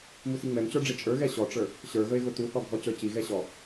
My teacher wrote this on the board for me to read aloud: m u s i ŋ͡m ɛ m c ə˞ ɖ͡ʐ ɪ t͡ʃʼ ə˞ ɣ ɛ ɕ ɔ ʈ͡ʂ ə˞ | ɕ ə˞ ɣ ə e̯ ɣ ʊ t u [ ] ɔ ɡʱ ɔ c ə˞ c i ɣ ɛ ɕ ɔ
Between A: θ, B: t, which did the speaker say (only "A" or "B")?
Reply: A